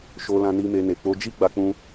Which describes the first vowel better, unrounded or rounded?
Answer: rounded